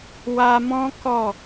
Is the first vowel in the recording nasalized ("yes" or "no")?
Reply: no